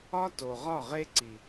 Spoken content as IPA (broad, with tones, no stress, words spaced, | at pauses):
ɒ˦to˨ʁɒ˦˨ʁe˦ ǀi˨